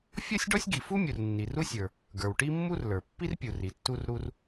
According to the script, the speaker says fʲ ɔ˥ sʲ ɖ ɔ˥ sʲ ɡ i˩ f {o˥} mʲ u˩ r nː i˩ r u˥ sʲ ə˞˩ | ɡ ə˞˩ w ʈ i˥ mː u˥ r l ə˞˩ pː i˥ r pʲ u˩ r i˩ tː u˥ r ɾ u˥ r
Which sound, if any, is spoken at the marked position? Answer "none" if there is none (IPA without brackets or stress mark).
u˥